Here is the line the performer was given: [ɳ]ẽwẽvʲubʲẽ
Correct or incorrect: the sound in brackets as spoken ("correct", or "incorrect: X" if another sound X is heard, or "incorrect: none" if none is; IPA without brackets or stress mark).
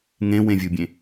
incorrect: ŋ